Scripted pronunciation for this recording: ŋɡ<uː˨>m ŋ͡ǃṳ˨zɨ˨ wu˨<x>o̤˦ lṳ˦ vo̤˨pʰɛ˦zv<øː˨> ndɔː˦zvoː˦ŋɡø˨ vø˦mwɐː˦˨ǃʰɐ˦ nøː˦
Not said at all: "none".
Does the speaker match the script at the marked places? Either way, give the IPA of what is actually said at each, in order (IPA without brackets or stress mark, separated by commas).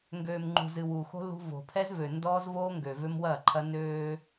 øː˨, x, ø˨